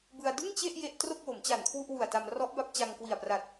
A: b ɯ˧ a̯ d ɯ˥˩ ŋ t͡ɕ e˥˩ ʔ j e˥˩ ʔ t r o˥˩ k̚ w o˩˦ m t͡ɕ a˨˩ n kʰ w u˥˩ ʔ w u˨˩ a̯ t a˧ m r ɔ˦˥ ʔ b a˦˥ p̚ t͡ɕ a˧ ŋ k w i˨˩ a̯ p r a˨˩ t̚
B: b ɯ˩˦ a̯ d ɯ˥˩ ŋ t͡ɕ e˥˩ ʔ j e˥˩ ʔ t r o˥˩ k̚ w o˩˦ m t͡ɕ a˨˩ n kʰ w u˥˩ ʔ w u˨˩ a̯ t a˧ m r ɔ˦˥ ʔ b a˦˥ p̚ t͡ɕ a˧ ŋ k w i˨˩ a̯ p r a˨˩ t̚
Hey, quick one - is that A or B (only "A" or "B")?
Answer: A